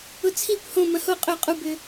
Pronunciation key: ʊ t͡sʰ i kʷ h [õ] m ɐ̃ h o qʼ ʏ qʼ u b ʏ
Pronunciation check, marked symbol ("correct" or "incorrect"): correct